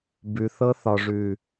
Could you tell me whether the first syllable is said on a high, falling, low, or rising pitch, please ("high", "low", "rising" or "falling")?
low